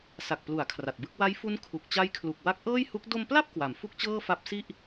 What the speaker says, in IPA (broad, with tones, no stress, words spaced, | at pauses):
sa˨˩k̚plu˩˦a̯ kʰra˨˩t̚bɯ˥˩k̚ wa˦˥jfu˦˥n kʰu˨˩k̚t͡ɕa˦˥jkʰlu˨˩k̚ wa˦˥k̚ʔɤː˥˩jhu˦˥k̚ do˧mpla˥˩p̚ kwa˩˦m fu˥˩k̚t͡ɕɤː˥˩fa˦˥p̚ si˥˩ʔ